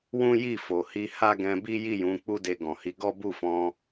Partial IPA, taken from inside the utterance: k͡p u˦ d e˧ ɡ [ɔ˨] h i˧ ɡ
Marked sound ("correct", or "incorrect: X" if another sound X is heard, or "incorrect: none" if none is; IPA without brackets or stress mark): incorrect: ɔ̃˨